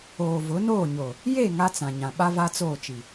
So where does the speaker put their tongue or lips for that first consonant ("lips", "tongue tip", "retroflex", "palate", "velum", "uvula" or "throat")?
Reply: lips